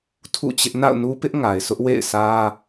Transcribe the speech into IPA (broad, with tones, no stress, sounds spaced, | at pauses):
tʰ ṵ˦˨ t͡ɕ ɪ˦ ʔ n a̰˦˨ ʊ̯ n u˦ p ɪ˦ ʔ ŋ a˨ ɪ̯ s ʊ˦ ʔ w ḛ˦˨ ɪ̯ s ä˦